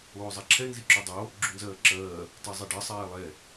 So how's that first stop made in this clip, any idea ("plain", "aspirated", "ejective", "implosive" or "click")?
click